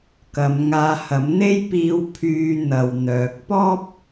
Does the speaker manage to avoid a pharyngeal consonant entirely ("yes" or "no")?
yes